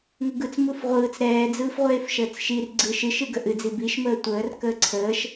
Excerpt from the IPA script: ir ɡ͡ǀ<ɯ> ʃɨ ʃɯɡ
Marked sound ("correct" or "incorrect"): correct